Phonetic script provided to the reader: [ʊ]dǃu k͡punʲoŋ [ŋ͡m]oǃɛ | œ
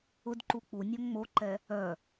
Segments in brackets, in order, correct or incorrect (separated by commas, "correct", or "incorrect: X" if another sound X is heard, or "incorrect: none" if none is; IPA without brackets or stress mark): correct, correct